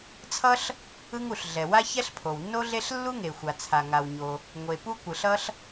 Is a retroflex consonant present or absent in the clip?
absent